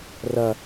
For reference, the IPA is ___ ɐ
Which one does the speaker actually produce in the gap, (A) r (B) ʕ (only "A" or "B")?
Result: A